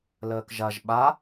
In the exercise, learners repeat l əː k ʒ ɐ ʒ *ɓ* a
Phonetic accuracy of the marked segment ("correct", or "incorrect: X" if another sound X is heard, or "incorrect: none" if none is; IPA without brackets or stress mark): correct